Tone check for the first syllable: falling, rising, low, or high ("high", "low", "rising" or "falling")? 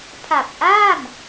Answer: low